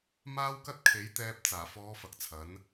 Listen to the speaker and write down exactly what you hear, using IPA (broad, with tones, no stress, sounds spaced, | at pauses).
m aː˥ w k ɐ˥ t̚ kʰ e˨˥ j t̪ ɛː˧ p̚ t͡s aː˨˩ f ɔː˨˧ f ɐ˨˥ k̚ t͡sʰ ɐ˨˥ n